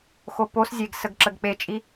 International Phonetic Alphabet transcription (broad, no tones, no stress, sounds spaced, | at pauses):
x o p o s zʲ e ɡ s ə ɡ ǁ ə ɡ k͡p e t͡ʃʼ i